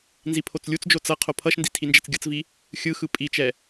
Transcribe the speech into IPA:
nzipʰot͡slʲut͡sd͡ʒo t͡sʌ qʰopʰʌʃndi tʰind͡ʒɛt͡sɡʲʌt͡svi | xʲɯxɯ pʼit͡ʃɛ

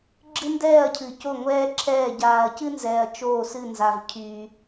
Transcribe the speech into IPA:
ɡ͡ǁɨ˥ndɛː˥˨ɐ̯cʰɨ˨ co˥˨ŋʷɛː˥ ǁʰɛː˥˨ ɟaː˨ɐ̯cɨ˥nzɛː˨ɐ̯ t͡ʃoː˥˨sɨ˥˨nza˨v cʰyː˨

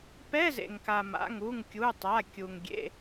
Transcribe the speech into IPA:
pɛ˧˥˧zḛ˩ŋka˩ma̰˩˧˩ŋ u˩˧˩ŋkʲu˩˧˩tˤa˩˧˩kʲu˩ŋ ɡʲḛ˩˧˩

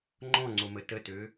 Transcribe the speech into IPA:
ŋ͡ǃɔ̃ŋ͡ǀomə tətø

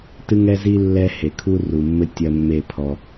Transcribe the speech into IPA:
tɨ˦ŋɛ˦zi˦ lːɛ˦he˨kʰu˦ ru˨mːɘ˦ tʲɐ˦mːe˦˨pʰɔ˧

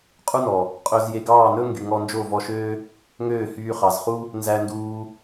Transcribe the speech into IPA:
qʼu˦nɔ˨ | qʼø˦z je˧ɡɑː˦˨nɵ˦ŋɡy˨ ŋɔ˧nd͡ʒo˦˨vɔ˧ʃøː˦ | ŋøː˦˨hyː˧χɑ˨zχu˦ | nzæ˧nduː˧

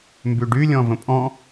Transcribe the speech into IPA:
mbyɖy lʲɔ̃və̃pʼɔ̃

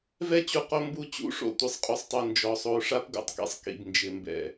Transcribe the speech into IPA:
vɛ˦t͡ɕu˨qo˦mbu˦˨ t͡ɕṵ˦ʂo̰˦˨ tʷɪ˨sˤqʼu˨sˤtˤu˨ nd͡ʒɔ˨sˤo˨˦ ʂa˦pɡo̰˨tˤkḭ˨sˤ kḭ˨bnd͡ʒɪ˨mbɛ̰˨

